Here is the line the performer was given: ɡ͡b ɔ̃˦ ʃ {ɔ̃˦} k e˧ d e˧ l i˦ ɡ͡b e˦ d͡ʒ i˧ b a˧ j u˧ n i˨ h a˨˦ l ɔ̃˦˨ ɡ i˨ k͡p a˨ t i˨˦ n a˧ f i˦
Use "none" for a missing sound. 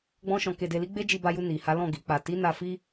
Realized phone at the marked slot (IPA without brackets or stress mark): ɔ̃˧